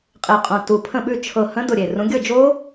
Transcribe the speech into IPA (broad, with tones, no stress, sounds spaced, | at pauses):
qʼ e˧˩ qʼ õ˧˩ t u˧˩ pʰ ə̃˥˨ ɓ ʉ˥˨ t͡ʃʰ ɤ˧˩ h ə̃˦˥ d ʊ˧˩ ɾʲ e˧˩ r ũ˨˦ ɡʲ ɤ˥˨ d͡ʒ o˦˥